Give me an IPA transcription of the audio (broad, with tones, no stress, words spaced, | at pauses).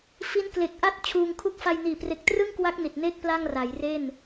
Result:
fi˦˥nkle˨˩k̚ʔa˥˩t̚ t͡ɕʰuː˧ŋkʰu˥˩k̚ fa˧jniː˨˩pre˨˩k̚ trɯ˥˩ŋkwa˦˥k̚ ni˨˩t̚ne˥˩k̚ pla˥˩ŋra˩˦jre˥˩n